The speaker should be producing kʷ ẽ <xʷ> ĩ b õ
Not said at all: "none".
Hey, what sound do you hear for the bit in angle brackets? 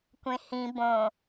h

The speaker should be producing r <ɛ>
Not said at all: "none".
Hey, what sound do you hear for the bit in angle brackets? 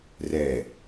ɛ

